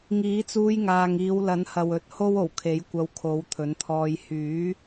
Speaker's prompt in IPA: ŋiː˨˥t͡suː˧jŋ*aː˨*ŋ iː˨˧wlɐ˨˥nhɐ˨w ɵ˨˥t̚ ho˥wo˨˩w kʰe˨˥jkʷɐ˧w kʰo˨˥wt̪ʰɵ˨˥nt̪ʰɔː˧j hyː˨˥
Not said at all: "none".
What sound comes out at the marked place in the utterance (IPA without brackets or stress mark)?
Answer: aː˨